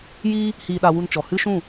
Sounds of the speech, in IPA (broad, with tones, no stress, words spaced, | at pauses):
jiː˦ | hiː˧ɗa˧wu˧nt͡ʃɔ˨ hɨ˦ʃũ˦˨